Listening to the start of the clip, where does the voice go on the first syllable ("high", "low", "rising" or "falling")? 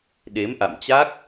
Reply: rising